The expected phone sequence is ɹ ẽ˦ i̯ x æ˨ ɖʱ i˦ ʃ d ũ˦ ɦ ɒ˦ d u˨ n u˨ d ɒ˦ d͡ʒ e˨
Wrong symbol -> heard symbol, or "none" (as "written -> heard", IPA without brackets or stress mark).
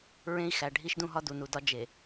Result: none